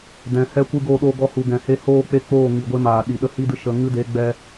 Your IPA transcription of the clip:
dɛ̃˨hɛ˦kʷɨ˦ ɡoː˧ɗoː˧ɡɔ˧hu˨ ɡɛ̃˨he˧ hoː˦˨ k͡pe˦k͡poː˦˨ ŋi˨ɡʷe˦maː˨ɗi˨ ɗə˧hi˦dɨ˧ ʃə˨ ŋɨ˦de˨˦ɡ͡bɛ˧

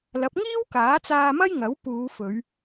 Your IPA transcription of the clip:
lɐ˨˥p̚ŋiː˥w kaː˨˥t͡saː˧mɐ˥j ŋɐ˨˥wpuː˨˧fɵ˨˧ɥ

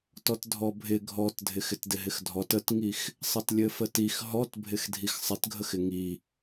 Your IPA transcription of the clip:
tɔtdʱɔbʱɪ ɡʱɔtdʱɪx ɪtdɪɦɪxdʱɔt ətŋix | sˤɘtlʲɘfətix ɦɔtbʱɪx dʱixsˤɪtɡʱəxɪ ŋi

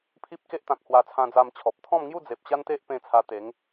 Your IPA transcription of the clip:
pʰi˦p̚ke˦ʔt̪ã˨k̚ hwa˧t͡sʰã˧d͡za˧mt͡ɕʰɔ˨p̚ t̪ʰɔ̃˥˧m ŋju˥˧ d͡ze˨p̚ɕa˦nt̪e˦ʔ pẽ˧ t͡sʰa˧t̪e˨˦ŋ

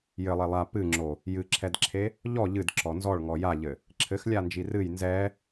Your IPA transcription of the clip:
jɘlˠe lˠa pɨŋ͡ǁo | jɨǁʰɛdǁʰe | ʎɔ ʎɨdǁɔ nzɔɭŋɔ jaʎɘ | ǁʰɘxlʲand͡ʒi rɨj nzɛ

